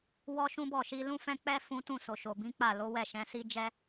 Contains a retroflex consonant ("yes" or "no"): no